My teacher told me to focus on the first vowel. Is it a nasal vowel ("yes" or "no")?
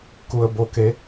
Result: no